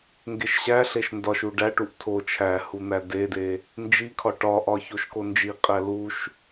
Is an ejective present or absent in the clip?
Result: present